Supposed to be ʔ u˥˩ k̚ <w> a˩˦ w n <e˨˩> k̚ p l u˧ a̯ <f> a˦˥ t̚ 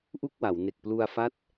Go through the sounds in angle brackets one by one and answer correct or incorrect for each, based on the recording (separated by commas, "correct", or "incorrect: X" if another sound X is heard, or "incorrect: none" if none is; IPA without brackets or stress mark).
correct, correct, correct